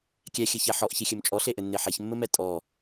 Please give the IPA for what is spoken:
kʲɛxʲɘçɛ ħɔʔçixʲɘm t͡ʃʼɔɬeʔɘnːe ħeçmːɘmɛ tʼɔ

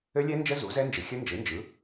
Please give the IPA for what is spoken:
ɘ˦˥lʲɛ˦˥nd͡ʒə˦˥ zu˩˥zɛ˦˥nd͡ʒɘ˨ xʲə˦˥nd͡ʒɯ˩˥nd͡ʒɯ˩˥

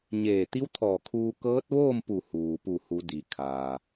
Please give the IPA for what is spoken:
ɲeː˧˩t̪i˧˥wt̪ʰɔː˧˩kʰuː˧ kɤː˧˥t̚ʋoː˥˨mpu˧˩ huː˩pu˧˩hu˩˧ di˩kʰaː˩

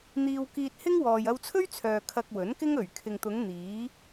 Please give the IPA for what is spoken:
n̪iː˧wkiː˧t̚hɪ˥ŋ wɔː˨jɐ˧wt͡sʰɵ˥ɥt͡sʰœː˨ kʰɐ˧k̚wɵ˨˥nkɪ˥ŋ ɵ˨˩ɥ kʰɪ˨ŋt̪ʊ˨˧ŋ n̪iː˨˥

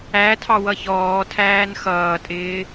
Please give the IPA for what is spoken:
ætʰɑwʌ çɔːtʰæːn xʌːtʼɪː

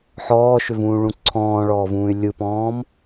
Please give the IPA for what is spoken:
ħɔːʃʏvũːɭũ ǀʰɔ̃ːɭɔːvũːy̯ lʲɯpɔ̃ːm

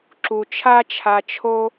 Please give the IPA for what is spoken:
ǁu˨t͡ʃʰa˦t͡ʃʰa˧t͡ʃʰo˦

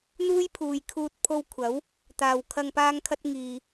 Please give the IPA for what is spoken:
n̪uː˥jpʰuː˨jkʰuː˧t̚ pʰo˧w kʷʰɐ˨˥w | t̪aː˨wkʰɐ˧ŋ paː˥ŋkʰɐ˥t̚ ŋiː˨

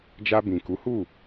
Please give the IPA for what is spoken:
d͡ʒa˧bĩ˨ku˨˦hu˦˨

